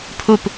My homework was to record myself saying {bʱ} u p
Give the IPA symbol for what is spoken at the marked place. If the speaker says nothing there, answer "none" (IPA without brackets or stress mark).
pʰ